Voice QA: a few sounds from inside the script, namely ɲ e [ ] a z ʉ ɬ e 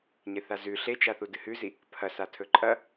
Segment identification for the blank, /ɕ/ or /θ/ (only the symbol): θ